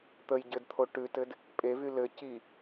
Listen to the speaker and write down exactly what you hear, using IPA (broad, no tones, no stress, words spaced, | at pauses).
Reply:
t̪əj ɟɘdt̪ʰo ʈʉtɘd | pʼevy lɘ ci